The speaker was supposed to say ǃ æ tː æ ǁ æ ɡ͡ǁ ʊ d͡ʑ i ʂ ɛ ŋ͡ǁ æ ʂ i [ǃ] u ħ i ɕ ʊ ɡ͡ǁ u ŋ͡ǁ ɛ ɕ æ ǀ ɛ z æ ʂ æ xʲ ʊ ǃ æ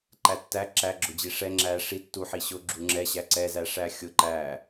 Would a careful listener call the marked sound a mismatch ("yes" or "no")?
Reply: yes